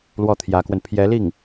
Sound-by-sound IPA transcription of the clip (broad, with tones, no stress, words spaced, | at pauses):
lwɔ˥˩t̪ʰjä˧˥kwə˧n pʰjɛ˧˥li˥˩ŋ